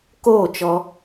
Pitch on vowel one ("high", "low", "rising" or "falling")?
falling